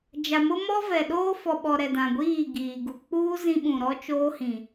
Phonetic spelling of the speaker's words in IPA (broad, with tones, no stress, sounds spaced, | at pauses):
d͡ʒ a˨ m ʊ˦ m ɔ˦ v ɛ˨ ɗ oː˦ f ɔ˨ ɓ ɔ˨ ɾ ɛ˨ d ã˨ ɡʷ iː˦˨ ɡ iː˨ ɡ u˨ k͡p uː˦ z ĩ˦ ɓ ũ˨ ɾ ɔ˦ t͡ʃ oː˦ h ĩ˨